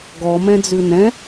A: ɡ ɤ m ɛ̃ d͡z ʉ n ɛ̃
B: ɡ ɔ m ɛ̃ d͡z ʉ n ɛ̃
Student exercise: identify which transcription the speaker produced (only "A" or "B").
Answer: B